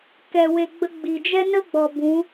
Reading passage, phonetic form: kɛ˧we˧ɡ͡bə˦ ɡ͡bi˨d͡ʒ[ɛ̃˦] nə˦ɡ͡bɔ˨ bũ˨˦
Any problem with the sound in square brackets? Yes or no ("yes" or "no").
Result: yes